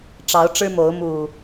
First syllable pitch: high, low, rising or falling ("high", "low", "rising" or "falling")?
rising